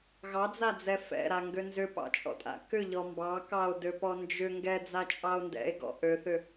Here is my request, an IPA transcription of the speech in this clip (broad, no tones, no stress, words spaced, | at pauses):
ɣɑd͡zad͡zɛ fɛ̰ɾaŋɡø nzʏpɑ̰t͡ʃʼɔ̰tʼa̰ kʏʎɔ mbɑkɑo̯døpɔ nd͡ʒʏ ŋɡɛd͡zat͡ʃʼɑo̯ ndɛ̰e̯ɡɔ̰ ʔøθʏ